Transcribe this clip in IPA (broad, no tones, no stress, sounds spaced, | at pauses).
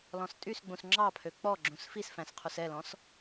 l ɔ̃ s tʼ y s ɡ͡b ũ s ŋ͡ǁ ɑ pʰ ø k͡p ɔ ɡ͡ǁ ũ s f i s f æ̃ s qʰ u s ɛ l ɔ̃ s